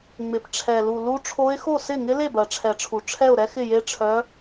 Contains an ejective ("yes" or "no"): no